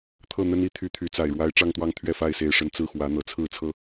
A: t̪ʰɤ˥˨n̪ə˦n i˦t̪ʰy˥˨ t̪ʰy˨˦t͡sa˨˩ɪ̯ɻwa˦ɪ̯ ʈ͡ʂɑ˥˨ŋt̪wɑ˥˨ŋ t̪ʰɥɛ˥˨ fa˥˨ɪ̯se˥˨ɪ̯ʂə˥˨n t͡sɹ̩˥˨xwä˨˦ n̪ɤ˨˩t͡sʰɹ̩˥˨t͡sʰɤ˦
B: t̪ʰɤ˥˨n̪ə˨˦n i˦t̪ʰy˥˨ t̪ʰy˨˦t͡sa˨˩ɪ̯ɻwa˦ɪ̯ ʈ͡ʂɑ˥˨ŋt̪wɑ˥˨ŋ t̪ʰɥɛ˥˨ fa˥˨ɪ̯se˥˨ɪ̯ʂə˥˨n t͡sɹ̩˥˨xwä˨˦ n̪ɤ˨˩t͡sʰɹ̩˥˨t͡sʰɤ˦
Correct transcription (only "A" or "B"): A